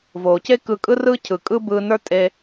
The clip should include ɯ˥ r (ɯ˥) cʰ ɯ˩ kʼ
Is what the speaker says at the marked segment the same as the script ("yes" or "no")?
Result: yes